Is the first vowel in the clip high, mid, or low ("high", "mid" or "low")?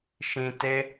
high